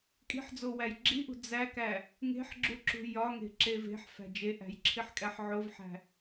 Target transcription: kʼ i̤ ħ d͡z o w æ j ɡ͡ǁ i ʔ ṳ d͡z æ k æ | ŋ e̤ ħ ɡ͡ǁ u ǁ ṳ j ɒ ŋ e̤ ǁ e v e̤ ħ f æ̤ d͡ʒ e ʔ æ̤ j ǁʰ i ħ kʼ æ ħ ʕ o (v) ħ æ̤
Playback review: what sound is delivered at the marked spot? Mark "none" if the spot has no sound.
v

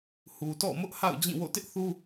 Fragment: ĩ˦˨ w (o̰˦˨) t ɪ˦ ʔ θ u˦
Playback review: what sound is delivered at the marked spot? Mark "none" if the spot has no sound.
o̰˦˨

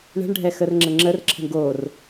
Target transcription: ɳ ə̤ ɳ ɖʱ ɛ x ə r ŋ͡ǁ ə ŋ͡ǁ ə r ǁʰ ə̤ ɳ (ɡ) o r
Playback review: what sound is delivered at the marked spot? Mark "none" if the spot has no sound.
ɡ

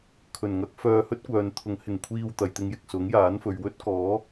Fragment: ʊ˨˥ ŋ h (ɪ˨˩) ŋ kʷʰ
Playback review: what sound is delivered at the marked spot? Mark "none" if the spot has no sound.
ɪ˨˩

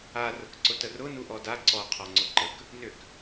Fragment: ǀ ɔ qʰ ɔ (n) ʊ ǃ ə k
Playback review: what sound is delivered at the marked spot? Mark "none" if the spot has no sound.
ŋ͡ǀ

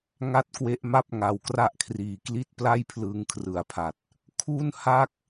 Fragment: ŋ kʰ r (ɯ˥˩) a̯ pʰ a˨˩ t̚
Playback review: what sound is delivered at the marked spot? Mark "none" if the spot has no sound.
ɯ˩˦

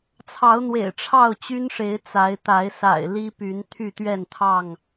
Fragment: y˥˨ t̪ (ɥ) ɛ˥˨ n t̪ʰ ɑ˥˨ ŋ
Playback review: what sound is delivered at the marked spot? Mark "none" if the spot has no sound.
ɥ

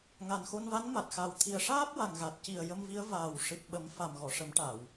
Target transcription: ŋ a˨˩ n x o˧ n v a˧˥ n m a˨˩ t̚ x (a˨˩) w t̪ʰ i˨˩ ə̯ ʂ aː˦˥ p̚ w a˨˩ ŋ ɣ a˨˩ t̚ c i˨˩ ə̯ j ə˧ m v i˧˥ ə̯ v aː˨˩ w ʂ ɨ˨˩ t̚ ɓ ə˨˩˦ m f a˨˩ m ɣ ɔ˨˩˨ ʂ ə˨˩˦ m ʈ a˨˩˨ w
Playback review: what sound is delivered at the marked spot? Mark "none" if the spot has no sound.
a˨˩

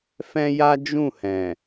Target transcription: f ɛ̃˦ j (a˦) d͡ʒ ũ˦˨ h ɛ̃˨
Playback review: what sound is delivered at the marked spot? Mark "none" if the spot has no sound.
a˦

